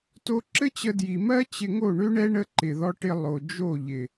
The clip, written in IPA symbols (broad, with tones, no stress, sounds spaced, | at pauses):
t o˧ ǁ ɘ˦ t͡ɕ ə˧ d j i˨ m ɜ˦ t͡ɕ ɪ˧ ŋ o˦˨ ɳ ø˦ ɳ ɛ˦ ɳ ə˦ ǃ ɪ˨ ð ɔ˦ ʈ ɪ˦ lˠ o˨ d͡ʒ o˦˨ ʎ ɪ˨